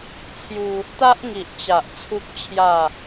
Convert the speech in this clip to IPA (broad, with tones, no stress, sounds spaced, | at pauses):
t͡sʰ j u˧ | t̪ a˦ ʔ ŋ i˨ ʔ t͡ɕ a˨ ʔ t͡sʰ u˦ k̚ t͡ɕʰ j a˥˧